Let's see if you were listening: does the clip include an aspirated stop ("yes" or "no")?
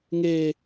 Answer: no